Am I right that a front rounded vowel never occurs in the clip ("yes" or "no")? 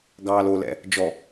yes